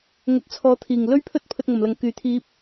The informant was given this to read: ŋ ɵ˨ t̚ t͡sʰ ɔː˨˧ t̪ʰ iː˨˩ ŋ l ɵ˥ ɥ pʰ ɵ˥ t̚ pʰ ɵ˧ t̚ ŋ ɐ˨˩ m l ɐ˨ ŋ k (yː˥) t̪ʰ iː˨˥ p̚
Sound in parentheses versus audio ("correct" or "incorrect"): incorrect